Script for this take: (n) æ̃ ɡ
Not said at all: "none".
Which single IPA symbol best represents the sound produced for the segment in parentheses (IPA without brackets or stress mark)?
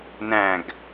n